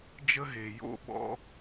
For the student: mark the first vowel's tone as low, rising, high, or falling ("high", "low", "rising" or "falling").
high